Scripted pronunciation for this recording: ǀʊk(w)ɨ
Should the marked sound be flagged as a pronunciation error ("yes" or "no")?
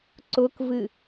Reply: yes